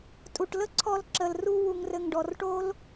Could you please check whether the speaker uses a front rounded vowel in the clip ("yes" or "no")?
no